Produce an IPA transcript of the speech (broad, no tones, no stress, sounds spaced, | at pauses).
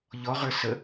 ʎ ɔ ʁ ə˞ s ə